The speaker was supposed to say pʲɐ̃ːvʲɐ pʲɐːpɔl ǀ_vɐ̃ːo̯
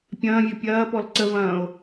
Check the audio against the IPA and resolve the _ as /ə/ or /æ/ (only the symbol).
ə